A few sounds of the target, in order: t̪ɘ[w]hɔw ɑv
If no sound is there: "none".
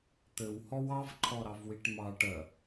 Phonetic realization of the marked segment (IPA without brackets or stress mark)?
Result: w